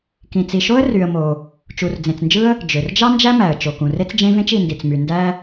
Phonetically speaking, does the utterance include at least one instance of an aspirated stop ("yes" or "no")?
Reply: no